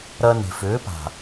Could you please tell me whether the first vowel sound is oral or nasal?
oral